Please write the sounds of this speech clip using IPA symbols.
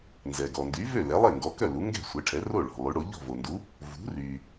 nzɛ˩ɡɔ˩ndy˩˥vø˥˩ lɛ˩˥lˠe˥˩ŋɡɔ˩˥kœ˥˩ lu˩˥ŋɡɛ̤˥˩sʷɛ˩˥ʈʰɛ˩˥ ro˥˩ɭɔ̤˩ lˠy˩˥ɽo˩˥ ʎɔ̤˥˩vo˩ndu˩˥ | vṳ˩˥ ry˩

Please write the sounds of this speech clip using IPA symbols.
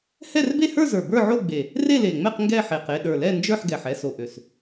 hɛ˥˧rbe˥˧hə˞˥˧zə˞˨˩ bə˞˥˧ʕo˥˧ɡ͡be˨˩ | re˥˧le˨˩ŋ͡mɛ˥˧q ŋɡɛ˥˧ħe˨˩q e˥˧ ɗə˞˨˩ lɛ˥˧nd͡ʒə˞˥˧ħɡɛ˨˩ħ ɛ˥˧so˨˩ ʔø˨˩s

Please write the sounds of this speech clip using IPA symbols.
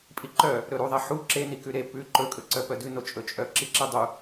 pʼiǃœ | ɾɵɾuðˤɛ ħu ǁenikʉ ɾe pʉ ǃɵkʼɵǀœ pœdʉno t͡ʃʼɵt͡ʃʼœ ǁiǁidˤu

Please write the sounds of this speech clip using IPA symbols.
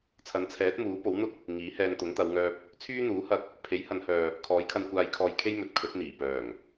t͡sʰɐ˨˥nt͡sʰɛː˨˥t̚muː˨˥po˨˥w n̪ʊ˥k̚ | ŋiː˨˥hɛː˧nt̪ʊ˨˥ŋ t̪ɐ˨˧wŋœː˧p̚ | t͡sʰyː˥n̪uː˨˥hɐ˧k̚ | pʰe˨˥jhɐ˨˧nhœː˨ | kʰɔː˨˥jkʰɐ˧nkʷaː˧jkʰɔː˧j kʰe˥jmɵ˨˥t̚kʰɵ˨˥t̚ n̪iː˨˩pœː˨˩ŋ

